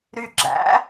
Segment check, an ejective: absent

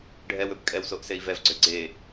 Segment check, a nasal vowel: absent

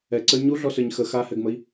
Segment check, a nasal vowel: absent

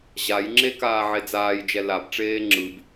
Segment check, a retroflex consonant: present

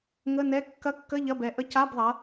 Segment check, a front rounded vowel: absent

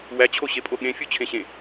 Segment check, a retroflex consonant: absent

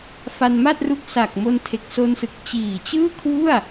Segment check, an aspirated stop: present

